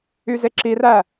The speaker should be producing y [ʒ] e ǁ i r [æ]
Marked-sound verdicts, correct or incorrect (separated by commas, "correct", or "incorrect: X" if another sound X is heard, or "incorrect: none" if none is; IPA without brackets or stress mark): incorrect: z, correct